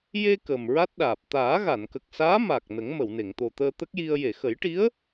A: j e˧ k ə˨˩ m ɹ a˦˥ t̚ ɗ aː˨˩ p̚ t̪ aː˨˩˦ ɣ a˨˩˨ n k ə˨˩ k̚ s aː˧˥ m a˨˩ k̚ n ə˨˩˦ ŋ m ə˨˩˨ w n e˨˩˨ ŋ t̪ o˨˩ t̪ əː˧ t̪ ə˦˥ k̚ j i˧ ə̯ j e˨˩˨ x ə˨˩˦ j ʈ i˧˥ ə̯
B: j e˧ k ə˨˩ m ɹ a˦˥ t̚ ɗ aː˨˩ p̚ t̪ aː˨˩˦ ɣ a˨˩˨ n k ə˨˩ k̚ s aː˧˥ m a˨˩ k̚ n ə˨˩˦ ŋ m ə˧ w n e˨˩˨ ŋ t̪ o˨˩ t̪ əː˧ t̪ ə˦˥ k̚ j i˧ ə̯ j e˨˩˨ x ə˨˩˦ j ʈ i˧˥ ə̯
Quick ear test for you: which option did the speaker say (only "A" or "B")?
A